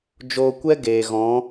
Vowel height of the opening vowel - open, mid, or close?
mid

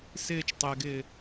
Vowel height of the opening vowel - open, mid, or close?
close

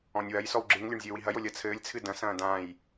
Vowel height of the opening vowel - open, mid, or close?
mid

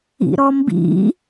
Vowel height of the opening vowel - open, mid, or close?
close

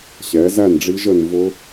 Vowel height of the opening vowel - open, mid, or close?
mid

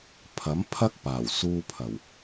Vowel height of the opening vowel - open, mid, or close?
open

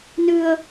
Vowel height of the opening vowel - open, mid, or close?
close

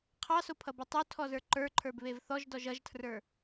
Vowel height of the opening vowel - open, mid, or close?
open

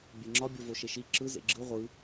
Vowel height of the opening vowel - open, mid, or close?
mid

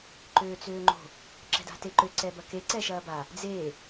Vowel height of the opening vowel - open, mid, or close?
mid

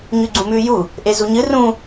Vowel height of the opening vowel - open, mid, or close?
close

